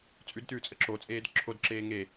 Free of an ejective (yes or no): no